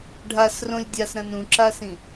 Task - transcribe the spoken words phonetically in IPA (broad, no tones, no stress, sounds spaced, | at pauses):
ɖʱ a s r õ lʲ dʲ a s ɾ ɐ̃ n ũ ǁ a s ĩ